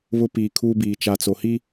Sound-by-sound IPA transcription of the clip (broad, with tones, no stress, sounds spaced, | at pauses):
β ʊ˦ p iː˨ kʰ uː˦ b iː˨ t͡ʃ a˨ t͡s o˨ h i˦